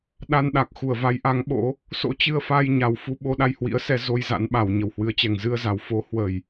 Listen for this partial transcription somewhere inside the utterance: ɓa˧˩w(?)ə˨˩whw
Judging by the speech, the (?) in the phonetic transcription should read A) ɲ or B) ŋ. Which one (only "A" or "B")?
A